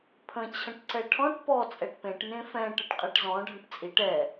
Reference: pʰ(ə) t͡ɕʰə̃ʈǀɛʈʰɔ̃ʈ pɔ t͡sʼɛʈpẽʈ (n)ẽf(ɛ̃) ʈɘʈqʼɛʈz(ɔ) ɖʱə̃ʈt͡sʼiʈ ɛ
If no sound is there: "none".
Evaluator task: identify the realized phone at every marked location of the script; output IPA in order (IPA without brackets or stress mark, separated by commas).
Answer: ə̃, n, ɛ̃, ɔ̃